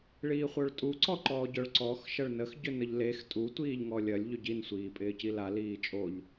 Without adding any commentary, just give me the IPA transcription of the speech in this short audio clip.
ɭ iː χʷ œ ɭ tʼ u ǀ ɔ ǃ ɔː ɟ œ ɭ ǀ ɔ x ʃ ɐ ɭ n ə x ɟ ʏ n ə ʎ l e x tʼ u tʷ iː ʎ ŋ ɔ lʲ ɐ lʲ ʎ ʏ ɟ i n sʷ iː pʼ ɪː c i l a l iː t͡ʃʼ o ʎ

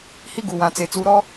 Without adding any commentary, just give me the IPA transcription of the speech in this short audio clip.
h i˦ ɡ u˨ w ã˨ t͡s e˨ t͡s u˨ ɾ ɔ˦

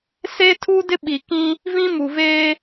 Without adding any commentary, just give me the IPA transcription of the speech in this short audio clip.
s e˦ tʰ u˦ d ɪ˦ ɓ i˨ k ĩ˦ | v ĩ˦ m u˨ v eː˦

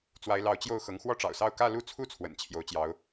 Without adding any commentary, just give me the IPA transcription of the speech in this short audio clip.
t͡s w a˧˥ ɪ̯ l ɑ˧˥ ʊ̯ t͡ɕ j o˥˩ ʊ̯ x ɤ˧˥ ŋ x w ɔ˥˩ ʈ͡ʂ ɑ̰˨˩ ʊ̯ s ɑ˥˧ ʊ̯ k ä˥˧ l u˥˧ t͡sʰ u˥˩ t͡sʰ w ə̰˨˩ n t͡ɕʰ j o˧˥ ʊ̯ t͡ɕ j ɑ˧˥ ʊ̯

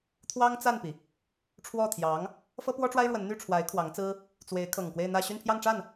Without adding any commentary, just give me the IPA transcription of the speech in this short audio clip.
t̪ʰ w ɑ˥ ŋ t͡s a˥˩ n p i˩ | ʈ͡ʂʰ w ɔ˥˩ t̪ʰ j ɑ˧˥ ŋ | f ɤ˥ p w ɔ˥ ʈ͡ʂ w a˥ ɪ̯ ɻ w ə˧˥ n n̪ y˥˩ ʈ͡ʂʰ w a˧˥ ɪ̯ kʰ w ɑ˧˥ ŋ t͡s ɹ̩˥ | t͡s w e˧˥ ɪ̯ kʰ ɤ˨˩ ŋ k w e˥˧ ɪ̯ n̪ ä˥˧ ɕ y˥˧ n pʰ j ɑ˥˧ ŋ ʈ͡ʂ a˥˩ n

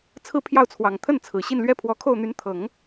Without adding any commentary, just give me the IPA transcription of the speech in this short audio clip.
t͡sʰ ɹ̩˥ pʰ j ɑ˥˩ ʊ̯ t͡sʰ w ɑ˨˩ ŋ t̪ʰ ə˥˩ n t͡sʰ ɹ̩˨˩ ɕ i˥˩ n l ɥ ɛ˥ pʰ w ɔ˧˥ kʰ o˥˩ ʊ̯ n̪ y˧˥ n t̪ʰ ɤ˨˩˦ ŋ

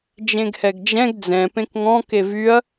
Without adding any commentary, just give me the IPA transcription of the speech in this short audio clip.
d͡ʒ ẽ ɡ h ɛ ɡ d͡ʒ ɛ̃ ɡ d͡z ɛ̃ p ẽ k ŋ ɔ̃ k e v y ɐ̯

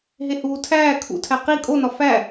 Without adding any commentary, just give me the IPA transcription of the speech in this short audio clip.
ɦ e h uː tʰ æː kʰ ṵ tʰ æ q i kʼ o n ɒ f æ

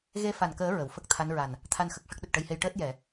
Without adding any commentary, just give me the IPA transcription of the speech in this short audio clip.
ɣ e˧ f a˨˩ n k əː˨˩˦ ɹ ə˨˩˨ w f ə˦˥ k̚ t̪ʰ a˧˥ n ɹ a˨˩ n | t̪ʰ a˧ n x ə˨˩ k̚ ʂ ə˦˥ k̚ ɗ ə˨˩ k̚ ʈ ə˧ j h e˧ j ʈ əː˦˥ t̚ j ɛ˨˩˨

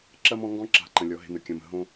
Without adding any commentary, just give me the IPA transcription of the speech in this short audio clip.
ǁ ɐ˦ m ɔ̃˦ ŋ ɡ ɔ̃˥ ǁ a̤˨ ǃ ə̃˩ lʲ ɔ˩ ɦ e̤˨ n ə˩ kʲ ɐ̃˩ m ə̤˨ ɦ õ˦

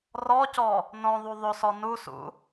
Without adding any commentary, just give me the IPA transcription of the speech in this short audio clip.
r ɔ c ɔ | n õ ðˤ u ðˤ o s ɔ n u s ṵ

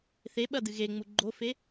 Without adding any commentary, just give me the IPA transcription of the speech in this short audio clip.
θ e ɓ ɐ d ɨ ɣ e ŋ͡m u ɡ͡ǃ o f e

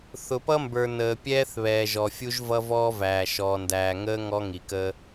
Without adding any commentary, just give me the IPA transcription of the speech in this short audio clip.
θ ʊ˨ p ʌ˦ m b ə˞˨ n əː˨ pʲ ɛː˦ θ β ɛː˨ ʒ ɔ˨ fʲ u˦ ʒ v ʌ˦ v ɔː˦ v æː˨ ʃ ɔː˨ n d æː˨ ŋ əː˦ ŋ ɔ˦ ŋ i˨ k əː˦

